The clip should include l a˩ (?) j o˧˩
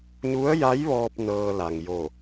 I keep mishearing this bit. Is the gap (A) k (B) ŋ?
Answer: B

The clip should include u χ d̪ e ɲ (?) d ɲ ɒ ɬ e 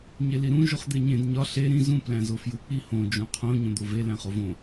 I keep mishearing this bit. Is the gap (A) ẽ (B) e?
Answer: A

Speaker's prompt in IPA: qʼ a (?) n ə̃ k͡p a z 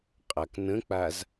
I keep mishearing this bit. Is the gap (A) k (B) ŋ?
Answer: A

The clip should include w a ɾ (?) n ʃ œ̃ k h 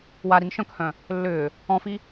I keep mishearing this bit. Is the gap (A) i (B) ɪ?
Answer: A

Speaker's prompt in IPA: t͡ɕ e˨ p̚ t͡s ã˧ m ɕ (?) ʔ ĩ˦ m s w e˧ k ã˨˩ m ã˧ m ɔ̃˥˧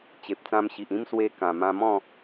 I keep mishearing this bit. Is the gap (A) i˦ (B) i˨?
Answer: B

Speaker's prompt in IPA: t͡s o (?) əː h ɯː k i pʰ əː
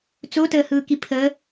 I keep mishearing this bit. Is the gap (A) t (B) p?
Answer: A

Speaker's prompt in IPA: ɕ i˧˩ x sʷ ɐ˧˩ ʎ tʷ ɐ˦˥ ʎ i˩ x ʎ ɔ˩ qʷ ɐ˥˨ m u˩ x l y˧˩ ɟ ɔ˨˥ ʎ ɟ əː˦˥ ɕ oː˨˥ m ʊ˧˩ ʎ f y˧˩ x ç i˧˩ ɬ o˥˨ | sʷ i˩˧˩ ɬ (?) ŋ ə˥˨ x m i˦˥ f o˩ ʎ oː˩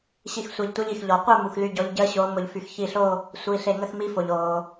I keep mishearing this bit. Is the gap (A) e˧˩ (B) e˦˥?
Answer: A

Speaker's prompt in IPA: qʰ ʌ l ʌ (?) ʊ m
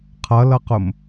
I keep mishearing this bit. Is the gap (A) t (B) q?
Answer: B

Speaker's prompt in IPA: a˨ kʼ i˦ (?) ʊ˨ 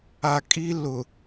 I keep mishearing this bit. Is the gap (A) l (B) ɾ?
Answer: A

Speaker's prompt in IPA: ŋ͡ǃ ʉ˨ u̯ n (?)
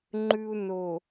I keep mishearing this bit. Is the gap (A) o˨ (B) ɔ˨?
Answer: A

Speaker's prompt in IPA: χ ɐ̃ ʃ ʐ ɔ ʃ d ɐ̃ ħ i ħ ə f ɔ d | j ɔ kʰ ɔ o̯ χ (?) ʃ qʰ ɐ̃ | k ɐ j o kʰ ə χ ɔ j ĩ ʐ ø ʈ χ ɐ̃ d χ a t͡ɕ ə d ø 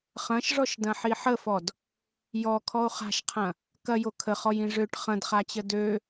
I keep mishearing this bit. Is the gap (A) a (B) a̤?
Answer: B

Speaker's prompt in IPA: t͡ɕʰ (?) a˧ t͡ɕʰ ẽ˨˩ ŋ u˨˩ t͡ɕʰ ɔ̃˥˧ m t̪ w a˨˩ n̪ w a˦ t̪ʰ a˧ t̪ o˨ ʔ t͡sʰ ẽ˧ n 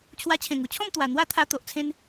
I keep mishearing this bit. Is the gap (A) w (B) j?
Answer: A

